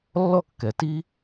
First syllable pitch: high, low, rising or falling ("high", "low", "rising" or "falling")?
falling